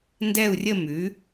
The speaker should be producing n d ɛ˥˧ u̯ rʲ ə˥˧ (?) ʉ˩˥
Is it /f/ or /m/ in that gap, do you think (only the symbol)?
m